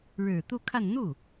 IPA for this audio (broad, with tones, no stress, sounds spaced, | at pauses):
ɻ ɻ̩˨˩ t̪ u˥˧ kʰ a˥˧ n n̪ u˥˩